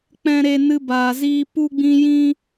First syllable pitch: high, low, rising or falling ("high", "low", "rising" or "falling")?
high